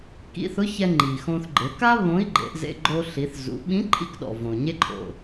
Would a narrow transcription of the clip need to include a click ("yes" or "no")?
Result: yes